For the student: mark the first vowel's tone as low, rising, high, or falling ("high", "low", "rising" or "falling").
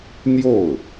falling